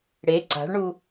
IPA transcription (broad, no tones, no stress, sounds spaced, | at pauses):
ɽ e ǀ a̤ ɭ ɳ u